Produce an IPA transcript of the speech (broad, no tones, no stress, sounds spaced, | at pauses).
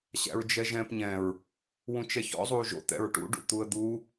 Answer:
ɕ æ̰ ɹ d͡ʒ ɛ ʒ ɛ̃ː p ɲ ɛ̃ ɹ | w ũ t͡ʃ ɛ ç ɔ̰ zˤ uː ʒ o̰ t̪ ɛ̰ ɹ ʈ ṵ ɖ ṵ t̪ u ə̯ d̪ u